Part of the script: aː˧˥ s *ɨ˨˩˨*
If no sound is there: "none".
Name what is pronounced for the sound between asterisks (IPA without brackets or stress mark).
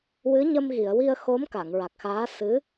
ɨ˧˥